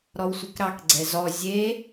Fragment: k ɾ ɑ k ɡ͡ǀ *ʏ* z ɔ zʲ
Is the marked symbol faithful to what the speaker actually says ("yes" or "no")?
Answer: no